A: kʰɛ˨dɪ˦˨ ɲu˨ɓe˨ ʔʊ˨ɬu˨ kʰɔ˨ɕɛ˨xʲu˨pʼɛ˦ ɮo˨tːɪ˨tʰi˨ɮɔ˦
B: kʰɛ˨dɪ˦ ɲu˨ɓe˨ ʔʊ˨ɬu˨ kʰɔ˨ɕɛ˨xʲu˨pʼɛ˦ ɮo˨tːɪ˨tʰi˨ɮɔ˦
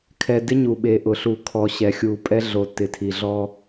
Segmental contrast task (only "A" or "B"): B